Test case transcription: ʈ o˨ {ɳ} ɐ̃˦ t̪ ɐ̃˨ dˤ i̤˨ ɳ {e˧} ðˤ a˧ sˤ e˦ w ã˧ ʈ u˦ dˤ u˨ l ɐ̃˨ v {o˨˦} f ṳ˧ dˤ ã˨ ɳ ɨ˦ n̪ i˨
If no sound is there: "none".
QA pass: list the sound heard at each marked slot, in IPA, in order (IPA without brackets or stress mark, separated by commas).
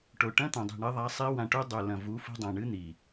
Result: ʈ, ɨ˧, u˨˦